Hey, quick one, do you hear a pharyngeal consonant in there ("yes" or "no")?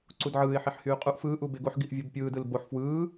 yes